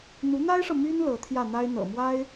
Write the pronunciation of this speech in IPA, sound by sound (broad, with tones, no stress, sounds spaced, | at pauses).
n̪ u˧˥ n̪ a˥ ɪ̯ ʂ ɤ˨ m y˥ n l ɤ˧˥ t̪ʰ j ä˥˩ n̪ a˥ ɪ̯ n̪ ɤ̰˨˩ m w a˥ ɪ̯